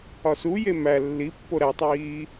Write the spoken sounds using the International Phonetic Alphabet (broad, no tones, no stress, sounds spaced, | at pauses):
ɒ s u j e m æ lː i pː o ɾ æ tˤ iː